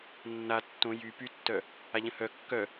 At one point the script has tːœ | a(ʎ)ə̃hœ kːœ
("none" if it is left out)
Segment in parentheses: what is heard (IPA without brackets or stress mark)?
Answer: ʎ